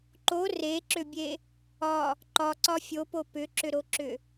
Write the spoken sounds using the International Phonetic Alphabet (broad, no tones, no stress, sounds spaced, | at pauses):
ǃ o r e ǁ ʏ bʲ e | ɒ | ǃ ɒ ǀ ɒ fʲ o p o p ʏ ǁ ʏ ɾ o ǁ ʏ